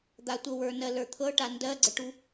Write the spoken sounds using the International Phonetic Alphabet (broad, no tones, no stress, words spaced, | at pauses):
d̪atʷɤwə˞nɜ lə˞t̪ʰɤʈa ndɜɡ͡ǀəʈu